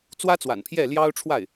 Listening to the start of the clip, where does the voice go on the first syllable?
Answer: high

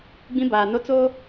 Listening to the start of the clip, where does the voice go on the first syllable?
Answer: high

